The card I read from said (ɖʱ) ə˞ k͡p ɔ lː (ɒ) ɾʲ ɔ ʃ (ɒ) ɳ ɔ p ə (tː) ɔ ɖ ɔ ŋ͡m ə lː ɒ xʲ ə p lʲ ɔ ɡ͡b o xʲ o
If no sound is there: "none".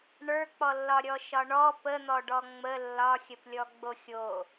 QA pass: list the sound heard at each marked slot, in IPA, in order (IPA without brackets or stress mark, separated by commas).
ɳ, ɒ, ɒ, n̪